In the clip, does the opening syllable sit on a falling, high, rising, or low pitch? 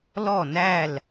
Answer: falling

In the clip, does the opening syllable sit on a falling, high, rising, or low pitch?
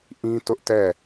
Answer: high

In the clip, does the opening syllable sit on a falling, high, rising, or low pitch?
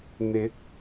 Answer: rising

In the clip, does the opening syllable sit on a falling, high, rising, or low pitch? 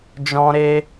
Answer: high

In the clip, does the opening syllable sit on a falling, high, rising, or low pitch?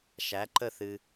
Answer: rising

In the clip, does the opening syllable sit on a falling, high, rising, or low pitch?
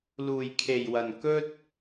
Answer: low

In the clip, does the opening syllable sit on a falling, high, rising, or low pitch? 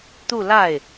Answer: falling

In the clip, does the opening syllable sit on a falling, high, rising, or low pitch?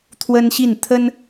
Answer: high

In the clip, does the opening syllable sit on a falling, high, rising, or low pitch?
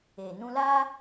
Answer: low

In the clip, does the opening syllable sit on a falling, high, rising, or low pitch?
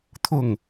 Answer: falling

